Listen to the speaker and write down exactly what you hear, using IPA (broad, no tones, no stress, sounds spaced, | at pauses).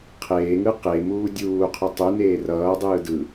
qʰ eː ŋ ɯ q e m uː dʲ uː qʰ ɯ tˤ u n eː r ʌː dˤ ɯː d ɯ